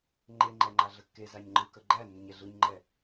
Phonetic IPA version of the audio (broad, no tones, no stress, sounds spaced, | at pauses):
ŋ͡ǃ e ŋ͡ǃ ɛ ŋ͡ǃ a ɮ ə kː e z a ɲ ŋ͡ǃ ɯ k ə ɡ͡ǃ æ nː ʏ ɲ ɛ ɮ ɯ ɲ ŋ͡ǃ ɛ